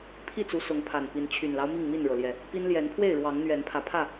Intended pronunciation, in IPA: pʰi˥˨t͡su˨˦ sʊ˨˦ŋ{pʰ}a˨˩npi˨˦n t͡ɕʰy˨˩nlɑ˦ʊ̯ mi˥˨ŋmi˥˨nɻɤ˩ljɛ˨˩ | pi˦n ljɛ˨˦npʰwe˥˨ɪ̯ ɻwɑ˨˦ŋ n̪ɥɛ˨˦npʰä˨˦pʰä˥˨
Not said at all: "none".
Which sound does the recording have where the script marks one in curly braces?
pʰ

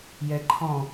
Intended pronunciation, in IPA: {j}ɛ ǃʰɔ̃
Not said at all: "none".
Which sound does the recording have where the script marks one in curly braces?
j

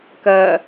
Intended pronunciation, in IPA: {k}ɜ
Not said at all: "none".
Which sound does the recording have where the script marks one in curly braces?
k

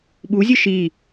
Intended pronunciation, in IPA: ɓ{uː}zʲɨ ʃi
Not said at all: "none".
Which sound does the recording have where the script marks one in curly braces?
u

